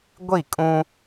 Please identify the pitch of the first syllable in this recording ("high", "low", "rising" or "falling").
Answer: falling